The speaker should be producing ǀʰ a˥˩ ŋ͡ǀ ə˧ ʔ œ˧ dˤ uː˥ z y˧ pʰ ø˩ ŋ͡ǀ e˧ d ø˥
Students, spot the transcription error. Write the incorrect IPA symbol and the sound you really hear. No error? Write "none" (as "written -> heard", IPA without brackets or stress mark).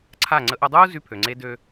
none